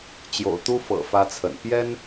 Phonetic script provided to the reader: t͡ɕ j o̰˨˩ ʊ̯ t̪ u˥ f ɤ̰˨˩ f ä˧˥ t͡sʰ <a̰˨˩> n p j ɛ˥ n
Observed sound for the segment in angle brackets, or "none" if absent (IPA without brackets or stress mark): ə̰˨˩